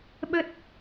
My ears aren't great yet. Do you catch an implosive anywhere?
yes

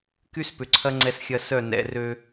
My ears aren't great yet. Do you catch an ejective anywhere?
no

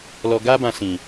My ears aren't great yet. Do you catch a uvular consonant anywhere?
no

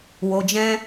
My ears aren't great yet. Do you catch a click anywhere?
no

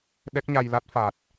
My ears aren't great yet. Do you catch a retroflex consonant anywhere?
no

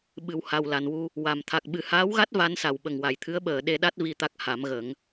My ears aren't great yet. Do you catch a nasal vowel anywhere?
no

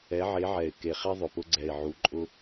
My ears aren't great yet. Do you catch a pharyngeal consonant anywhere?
yes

